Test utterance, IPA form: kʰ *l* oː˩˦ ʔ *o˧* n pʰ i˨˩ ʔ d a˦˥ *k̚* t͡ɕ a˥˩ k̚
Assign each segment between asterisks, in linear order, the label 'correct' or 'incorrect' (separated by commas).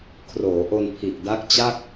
incorrect, correct, correct